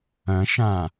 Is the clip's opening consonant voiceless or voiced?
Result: voiceless